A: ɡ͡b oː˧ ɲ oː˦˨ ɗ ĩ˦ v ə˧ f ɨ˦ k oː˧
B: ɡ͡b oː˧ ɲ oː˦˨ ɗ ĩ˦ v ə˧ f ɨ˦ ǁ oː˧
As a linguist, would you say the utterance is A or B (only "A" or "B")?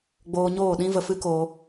A